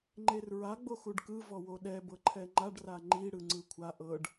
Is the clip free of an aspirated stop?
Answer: no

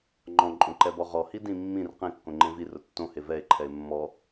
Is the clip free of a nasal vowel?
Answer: no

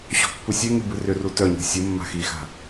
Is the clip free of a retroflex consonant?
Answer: yes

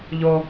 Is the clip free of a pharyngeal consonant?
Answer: yes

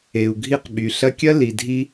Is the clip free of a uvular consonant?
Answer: no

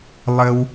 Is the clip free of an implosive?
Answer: yes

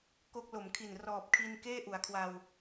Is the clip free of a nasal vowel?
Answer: yes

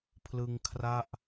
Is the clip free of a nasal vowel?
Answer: yes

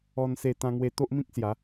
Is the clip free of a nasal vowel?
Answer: no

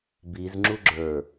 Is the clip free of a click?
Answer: no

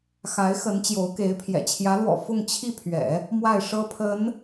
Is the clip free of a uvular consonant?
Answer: yes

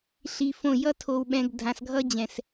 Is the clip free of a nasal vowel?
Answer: no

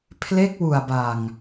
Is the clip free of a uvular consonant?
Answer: yes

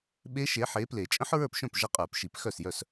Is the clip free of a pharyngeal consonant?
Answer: no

